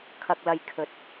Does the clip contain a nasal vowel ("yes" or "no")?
no